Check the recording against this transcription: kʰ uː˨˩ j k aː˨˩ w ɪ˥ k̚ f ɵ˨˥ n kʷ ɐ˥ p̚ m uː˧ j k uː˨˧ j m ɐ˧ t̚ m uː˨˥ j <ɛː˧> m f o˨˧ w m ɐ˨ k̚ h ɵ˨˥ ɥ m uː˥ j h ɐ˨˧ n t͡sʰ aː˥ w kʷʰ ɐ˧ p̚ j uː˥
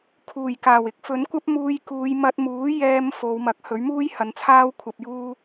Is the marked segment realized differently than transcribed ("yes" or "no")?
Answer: no